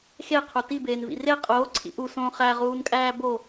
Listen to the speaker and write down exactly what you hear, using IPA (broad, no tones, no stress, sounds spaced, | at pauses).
x e qʰ u t i b eː n v ḭ r e qʼ oː ǀʰ ḭ ʔ u s õː χ æ ʁ uː n kʼ æː b o